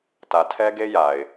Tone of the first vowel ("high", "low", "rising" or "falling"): low